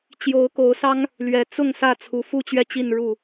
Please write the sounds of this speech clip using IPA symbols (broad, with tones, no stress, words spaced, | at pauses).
t͡ɕjo˨˦ʊ̯ ko˨˦ʊ̯sɑ˦ŋ | lɥɛ˨˩t͡sʊ˥˨ŋ sä˥˨t͡sʰu˨˦ fu˥˨t͡ɕɥɛ˥˨t͡ɕi˥˨n ɻu˥˨